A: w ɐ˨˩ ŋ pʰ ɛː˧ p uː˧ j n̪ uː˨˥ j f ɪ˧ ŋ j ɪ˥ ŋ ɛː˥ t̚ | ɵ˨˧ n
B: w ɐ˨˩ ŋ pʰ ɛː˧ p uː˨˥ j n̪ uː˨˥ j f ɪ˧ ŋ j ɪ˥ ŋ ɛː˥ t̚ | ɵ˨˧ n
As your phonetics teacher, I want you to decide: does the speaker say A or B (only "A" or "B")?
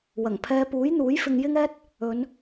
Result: B